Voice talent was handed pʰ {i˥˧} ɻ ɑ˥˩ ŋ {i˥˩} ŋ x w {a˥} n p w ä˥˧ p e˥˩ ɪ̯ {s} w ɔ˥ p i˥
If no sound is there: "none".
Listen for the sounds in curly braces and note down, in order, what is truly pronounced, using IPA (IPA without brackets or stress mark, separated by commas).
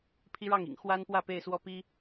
i˥, ḭ˨˩, a˥, s